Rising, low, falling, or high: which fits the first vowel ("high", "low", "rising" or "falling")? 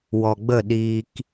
low